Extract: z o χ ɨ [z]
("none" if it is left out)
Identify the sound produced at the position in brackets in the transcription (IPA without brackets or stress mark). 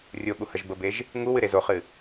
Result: none